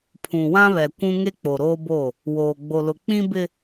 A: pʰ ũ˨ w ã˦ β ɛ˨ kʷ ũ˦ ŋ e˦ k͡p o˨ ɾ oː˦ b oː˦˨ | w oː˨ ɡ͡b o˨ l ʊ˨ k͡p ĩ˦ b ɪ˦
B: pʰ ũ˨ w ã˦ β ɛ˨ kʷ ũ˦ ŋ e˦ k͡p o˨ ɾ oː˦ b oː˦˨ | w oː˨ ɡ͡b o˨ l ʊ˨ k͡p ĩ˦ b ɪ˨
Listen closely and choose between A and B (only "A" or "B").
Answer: A